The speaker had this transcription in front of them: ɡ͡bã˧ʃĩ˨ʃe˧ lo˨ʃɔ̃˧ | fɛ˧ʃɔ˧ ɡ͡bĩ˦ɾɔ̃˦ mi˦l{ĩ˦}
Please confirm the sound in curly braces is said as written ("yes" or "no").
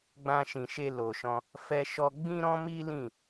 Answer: no